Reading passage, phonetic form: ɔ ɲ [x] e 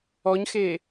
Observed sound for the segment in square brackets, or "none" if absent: x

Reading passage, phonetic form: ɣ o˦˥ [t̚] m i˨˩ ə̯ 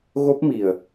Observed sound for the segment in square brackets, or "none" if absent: p̚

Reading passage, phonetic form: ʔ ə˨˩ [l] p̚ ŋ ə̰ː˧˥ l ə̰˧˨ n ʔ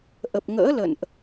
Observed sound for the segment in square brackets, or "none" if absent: none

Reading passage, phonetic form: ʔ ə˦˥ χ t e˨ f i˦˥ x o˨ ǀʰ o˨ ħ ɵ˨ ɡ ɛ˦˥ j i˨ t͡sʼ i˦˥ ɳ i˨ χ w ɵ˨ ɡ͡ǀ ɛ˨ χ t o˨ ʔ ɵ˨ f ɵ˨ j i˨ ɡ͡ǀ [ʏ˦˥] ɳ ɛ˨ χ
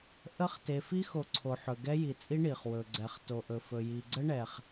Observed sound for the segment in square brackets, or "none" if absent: ə˦˥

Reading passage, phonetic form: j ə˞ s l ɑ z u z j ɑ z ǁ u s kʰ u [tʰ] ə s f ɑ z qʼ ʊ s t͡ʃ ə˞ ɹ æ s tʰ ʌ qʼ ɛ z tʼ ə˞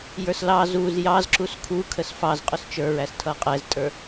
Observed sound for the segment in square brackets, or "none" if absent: kʰ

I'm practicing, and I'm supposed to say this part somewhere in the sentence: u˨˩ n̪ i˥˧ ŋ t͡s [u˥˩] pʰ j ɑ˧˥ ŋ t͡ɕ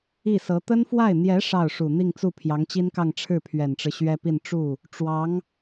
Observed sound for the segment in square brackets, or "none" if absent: u˥˩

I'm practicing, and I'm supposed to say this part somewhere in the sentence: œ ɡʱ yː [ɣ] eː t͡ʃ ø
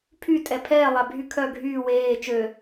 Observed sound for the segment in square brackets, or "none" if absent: w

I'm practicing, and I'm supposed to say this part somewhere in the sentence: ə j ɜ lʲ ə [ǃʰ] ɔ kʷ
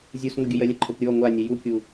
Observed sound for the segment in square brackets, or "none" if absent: ǃʰ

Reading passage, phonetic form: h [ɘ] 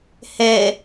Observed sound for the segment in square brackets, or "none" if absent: e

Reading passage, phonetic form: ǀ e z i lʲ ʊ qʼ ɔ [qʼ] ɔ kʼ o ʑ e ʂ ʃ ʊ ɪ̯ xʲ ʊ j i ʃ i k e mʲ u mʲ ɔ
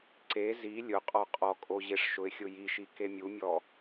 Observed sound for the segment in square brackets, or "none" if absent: qʼ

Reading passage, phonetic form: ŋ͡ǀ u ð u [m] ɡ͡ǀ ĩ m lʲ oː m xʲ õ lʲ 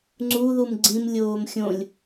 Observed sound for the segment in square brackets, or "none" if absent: m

